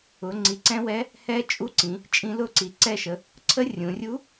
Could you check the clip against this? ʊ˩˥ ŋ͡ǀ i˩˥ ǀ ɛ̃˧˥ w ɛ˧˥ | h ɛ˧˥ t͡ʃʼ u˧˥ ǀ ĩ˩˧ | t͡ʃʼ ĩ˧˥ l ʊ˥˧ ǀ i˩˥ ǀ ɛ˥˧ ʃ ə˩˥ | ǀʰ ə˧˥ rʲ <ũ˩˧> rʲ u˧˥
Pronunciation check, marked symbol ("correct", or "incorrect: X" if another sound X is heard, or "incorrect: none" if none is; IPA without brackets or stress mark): correct